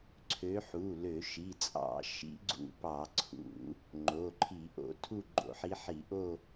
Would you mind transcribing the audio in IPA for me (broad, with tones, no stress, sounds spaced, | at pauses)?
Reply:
ǀʰ ø˨˦ ħ u˩˧˩ l ø˧˩˧ ʃ i˩˧˩ t͡sʼ ɑ̰˧˩˧ ʃ ḭ˨˦ ɡ͡ǀ ṵ˧˩˧ p ɑ˧˩˧ ǀʰ ṵ˧˩˧ | ŋ͡ǃ o˩˧˩ ǃʰ i˧˩˧ ʔ o̰˨˦ tʰ u˥˧ ɡ͡ǃ o̰˧˩˧ ħ i˨˦ ħ i˧˩˧ ʔ o˥˧